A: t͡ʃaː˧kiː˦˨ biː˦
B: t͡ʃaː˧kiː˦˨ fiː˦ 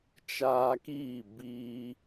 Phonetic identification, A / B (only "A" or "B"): A